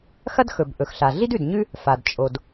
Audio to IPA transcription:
xɐ˥dxɵ˩b ʔɵ˩xɬa˩ ɮi˥dʉ˩dɲʉ˥ | fa˩d t͡ʃʼo˩d

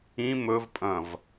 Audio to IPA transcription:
ĩ mɵvpʼɐ̃v

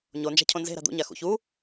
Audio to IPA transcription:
ɲond͡ʒa̤ cʰõnze̤ɾa̤ d̪ṵɲa xṵ çu

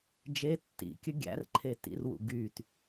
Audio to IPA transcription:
d͡ʒe tːḭkʲə ɡʲæ̰r ǃʰetḭrwṵ ɡyt

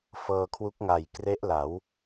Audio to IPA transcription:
fɤː˧kʰwu˦˥k̚ŋa˨˩j kre˦˥ʔla˩˦w

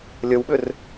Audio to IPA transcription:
lʲəwɓʏr

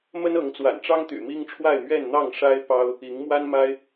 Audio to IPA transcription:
mə˦nɤ˨˦ŋt͡swa̰˨˩nʈ͡ʂɑ˦ŋ t̪y̰˨˩mi˦ŋʈ͡ʂʰwa˥˨ɪ̯ mɥɛ˥˨nn̪ɑ˥˨ŋʂa˦ɪ̯ pɑ˦ʊ̯ | i˨˦ŋmwa˦nma˦ɪ̯

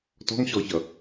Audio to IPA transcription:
tɔ̤ŋɕɔçʌ

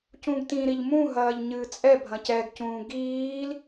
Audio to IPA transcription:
cũɡtĩ ɾiʎmũ ɦɐːʎɲɨːt͡sʼɛ bʱɐ̃cɛɡcũː ɡiːl

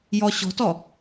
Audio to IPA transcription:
jɔɕɔ̤tɔ

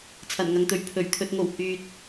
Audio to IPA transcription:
t͡sʰɐ˨˩nŋɐ˨ŋt̪ɵ˨ɥ pʰɵ˨˩ɥ t̪ʰɵ˨t̚ŋo˨˩w hyː˨t̚

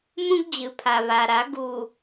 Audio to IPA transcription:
mũ˦ɡd͡ʑɨ˨pʰa˨ βa˨ɾa˨˦ ɡu˨

